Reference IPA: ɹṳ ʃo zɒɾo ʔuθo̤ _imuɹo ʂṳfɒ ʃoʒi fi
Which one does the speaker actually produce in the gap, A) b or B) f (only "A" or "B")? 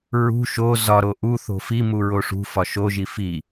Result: B